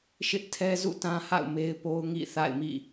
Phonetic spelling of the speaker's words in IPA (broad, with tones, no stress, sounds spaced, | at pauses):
ʃ ɪ˦ ʔ tʰ ɛ˦ z ṵ˦˨ t ã˦ h a̰˦˨ ʊ̯ m e˦ ɪ̯ p o˦ ʊ̯ ŋ ḭ˦˨ θ a̰˦˨ ɪ̯ m ḭ˦˨